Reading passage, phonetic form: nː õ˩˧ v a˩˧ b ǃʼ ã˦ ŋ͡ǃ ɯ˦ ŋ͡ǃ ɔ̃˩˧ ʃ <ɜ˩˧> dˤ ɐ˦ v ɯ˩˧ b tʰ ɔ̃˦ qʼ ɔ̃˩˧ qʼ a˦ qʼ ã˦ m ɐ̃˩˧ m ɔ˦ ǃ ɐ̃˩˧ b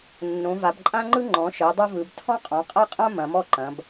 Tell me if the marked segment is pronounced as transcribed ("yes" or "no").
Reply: yes